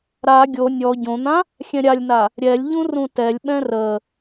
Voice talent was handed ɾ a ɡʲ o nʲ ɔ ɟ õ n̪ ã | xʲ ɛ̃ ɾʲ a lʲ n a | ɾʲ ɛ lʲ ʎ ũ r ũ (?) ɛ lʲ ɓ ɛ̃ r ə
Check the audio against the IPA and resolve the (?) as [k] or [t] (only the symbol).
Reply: t